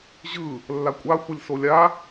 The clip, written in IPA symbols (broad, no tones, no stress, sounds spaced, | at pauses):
ʑ ɯ | lː a kʷʼ a xʷ ɯ lʲ s o lʲ a